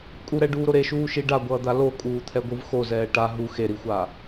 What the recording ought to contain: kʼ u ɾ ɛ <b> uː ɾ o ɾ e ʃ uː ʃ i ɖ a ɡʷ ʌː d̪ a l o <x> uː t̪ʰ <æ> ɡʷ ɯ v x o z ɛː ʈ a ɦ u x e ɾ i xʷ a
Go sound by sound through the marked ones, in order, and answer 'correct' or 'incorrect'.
incorrect: ɖ, incorrect: kʼ, incorrect: ɛ

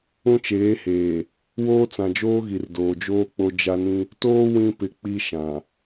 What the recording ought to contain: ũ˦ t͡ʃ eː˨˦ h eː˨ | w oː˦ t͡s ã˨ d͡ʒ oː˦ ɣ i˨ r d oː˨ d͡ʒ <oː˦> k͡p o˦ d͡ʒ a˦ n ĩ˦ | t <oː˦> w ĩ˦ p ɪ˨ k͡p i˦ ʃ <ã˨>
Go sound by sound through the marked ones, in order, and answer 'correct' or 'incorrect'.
correct, correct, correct

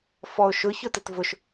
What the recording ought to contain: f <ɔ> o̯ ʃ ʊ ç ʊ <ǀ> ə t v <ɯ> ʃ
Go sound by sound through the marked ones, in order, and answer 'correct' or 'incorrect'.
correct, incorrect: t, incorrect: ʊ

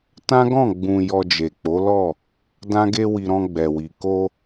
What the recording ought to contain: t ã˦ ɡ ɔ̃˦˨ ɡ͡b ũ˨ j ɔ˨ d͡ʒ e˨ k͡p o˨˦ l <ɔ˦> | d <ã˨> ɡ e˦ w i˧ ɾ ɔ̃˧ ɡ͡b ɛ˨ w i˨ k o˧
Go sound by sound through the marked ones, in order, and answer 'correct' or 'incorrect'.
incorrect: ɔ˦˨, incorrect: ã˦

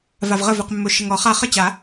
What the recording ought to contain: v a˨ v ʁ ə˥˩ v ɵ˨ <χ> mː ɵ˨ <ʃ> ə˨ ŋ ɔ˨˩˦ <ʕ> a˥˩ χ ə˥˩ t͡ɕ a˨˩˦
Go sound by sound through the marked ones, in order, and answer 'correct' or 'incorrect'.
incorrect: q, correct, incorrect: χ

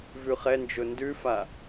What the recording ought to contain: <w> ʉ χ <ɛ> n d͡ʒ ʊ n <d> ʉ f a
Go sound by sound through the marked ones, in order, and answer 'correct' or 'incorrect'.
incorrect: v, correct, correct

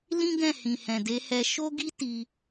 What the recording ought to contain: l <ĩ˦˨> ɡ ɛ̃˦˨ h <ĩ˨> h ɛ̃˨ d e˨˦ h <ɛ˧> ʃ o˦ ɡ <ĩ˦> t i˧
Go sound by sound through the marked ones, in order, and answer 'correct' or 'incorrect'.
incorrect: ĩ˦, correct, correct, incorrect: i˦

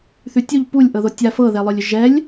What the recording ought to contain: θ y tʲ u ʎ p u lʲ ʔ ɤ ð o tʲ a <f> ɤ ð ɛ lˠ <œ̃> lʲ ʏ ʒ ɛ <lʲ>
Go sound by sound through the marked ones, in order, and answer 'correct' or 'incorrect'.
correct, incorrect: œ, correct

